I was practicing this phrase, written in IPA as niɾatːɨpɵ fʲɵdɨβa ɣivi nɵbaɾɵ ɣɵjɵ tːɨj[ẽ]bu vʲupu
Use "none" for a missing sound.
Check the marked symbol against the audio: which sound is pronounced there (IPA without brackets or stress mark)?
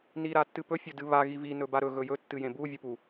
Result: ẽ